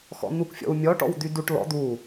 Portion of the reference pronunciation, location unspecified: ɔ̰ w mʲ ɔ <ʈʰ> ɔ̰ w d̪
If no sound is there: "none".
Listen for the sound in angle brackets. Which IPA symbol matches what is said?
ʈ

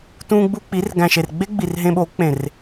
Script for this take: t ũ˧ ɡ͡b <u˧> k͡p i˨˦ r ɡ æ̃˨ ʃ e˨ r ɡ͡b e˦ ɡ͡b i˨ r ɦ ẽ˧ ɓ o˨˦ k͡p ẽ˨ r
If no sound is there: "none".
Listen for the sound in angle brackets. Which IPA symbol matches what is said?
u˧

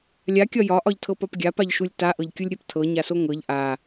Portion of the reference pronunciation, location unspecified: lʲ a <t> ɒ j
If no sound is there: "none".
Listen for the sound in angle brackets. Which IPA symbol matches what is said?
kʲ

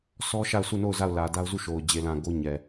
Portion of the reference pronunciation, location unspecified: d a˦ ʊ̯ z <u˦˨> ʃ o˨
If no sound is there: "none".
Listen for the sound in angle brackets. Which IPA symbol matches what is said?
u˦˨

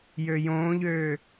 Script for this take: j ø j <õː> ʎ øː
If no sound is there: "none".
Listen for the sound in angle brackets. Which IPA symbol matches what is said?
õː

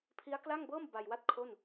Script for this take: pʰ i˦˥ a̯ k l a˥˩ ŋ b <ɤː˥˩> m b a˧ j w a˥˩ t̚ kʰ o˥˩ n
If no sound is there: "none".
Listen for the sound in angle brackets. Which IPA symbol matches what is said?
ɤː˥˩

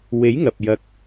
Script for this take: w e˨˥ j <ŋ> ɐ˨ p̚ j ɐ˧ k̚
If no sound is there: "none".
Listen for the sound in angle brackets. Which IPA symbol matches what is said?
ŋ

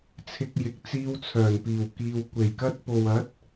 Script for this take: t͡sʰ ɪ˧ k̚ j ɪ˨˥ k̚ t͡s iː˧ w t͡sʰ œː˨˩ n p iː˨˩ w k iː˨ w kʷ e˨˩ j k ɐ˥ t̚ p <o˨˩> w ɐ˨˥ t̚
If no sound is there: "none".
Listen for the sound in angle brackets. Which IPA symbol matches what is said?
o˨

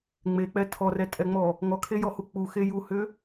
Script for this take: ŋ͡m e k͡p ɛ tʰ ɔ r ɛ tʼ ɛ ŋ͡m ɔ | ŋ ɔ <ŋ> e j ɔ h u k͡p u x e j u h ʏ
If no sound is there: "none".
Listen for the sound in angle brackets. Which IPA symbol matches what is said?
kʰ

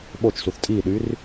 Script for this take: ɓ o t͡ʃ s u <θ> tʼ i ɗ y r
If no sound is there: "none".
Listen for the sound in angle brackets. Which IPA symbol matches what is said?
θ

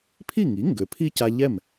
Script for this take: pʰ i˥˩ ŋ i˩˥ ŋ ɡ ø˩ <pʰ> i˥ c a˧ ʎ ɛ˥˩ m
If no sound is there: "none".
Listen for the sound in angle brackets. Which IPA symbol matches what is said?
pʰ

